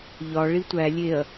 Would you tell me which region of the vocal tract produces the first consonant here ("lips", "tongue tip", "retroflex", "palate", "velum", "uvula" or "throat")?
palate